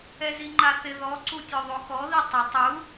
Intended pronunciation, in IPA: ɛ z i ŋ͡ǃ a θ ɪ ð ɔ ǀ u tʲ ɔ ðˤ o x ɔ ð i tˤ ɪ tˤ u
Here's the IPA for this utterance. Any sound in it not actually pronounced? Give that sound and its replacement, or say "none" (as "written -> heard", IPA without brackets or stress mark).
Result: none